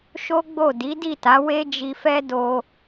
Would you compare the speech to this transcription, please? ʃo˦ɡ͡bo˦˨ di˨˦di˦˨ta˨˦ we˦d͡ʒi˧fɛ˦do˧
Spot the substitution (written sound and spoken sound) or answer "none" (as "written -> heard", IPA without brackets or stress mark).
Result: none